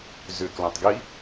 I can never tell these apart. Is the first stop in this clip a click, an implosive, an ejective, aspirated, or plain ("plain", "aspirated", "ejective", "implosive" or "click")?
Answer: plain